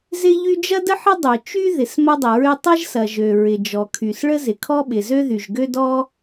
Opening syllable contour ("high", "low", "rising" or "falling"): high